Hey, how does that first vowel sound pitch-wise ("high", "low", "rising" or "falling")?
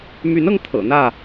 rising